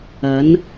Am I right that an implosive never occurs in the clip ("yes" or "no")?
yes